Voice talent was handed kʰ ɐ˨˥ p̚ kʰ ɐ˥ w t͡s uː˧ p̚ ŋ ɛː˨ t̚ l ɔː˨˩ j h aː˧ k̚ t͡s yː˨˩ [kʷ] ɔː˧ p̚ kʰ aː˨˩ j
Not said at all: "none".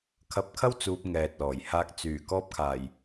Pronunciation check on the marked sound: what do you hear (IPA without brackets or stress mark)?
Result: k